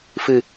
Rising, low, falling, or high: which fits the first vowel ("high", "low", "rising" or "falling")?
low